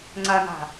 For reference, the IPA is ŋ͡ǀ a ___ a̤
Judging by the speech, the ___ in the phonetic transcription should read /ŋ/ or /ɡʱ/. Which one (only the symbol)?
ŋ